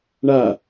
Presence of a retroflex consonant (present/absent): present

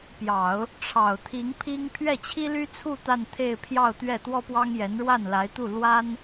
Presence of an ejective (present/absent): absent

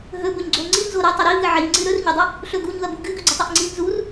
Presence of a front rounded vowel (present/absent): absent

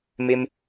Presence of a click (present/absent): absent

